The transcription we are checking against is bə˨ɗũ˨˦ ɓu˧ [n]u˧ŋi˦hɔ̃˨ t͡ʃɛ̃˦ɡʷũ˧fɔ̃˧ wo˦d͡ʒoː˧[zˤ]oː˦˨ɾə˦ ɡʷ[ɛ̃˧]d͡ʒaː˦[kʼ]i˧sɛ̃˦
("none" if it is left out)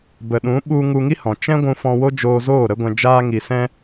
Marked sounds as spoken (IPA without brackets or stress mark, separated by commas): ŋ, z, ɛ̃˧, ŋ